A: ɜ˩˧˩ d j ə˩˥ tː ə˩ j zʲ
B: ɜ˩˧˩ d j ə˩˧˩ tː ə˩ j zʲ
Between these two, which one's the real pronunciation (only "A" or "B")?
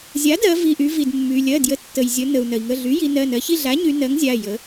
A